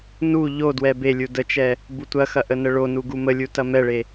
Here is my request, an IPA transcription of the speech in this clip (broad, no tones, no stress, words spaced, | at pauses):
nu ʎodwɛ belʲu dət͡ʃɛ | butʷɐxɐ ʔənəɭonu ɡuməlʲu tɐmɛɭe